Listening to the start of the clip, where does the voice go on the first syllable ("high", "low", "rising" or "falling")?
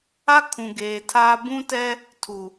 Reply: high